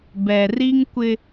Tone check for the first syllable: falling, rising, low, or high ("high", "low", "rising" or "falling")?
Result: low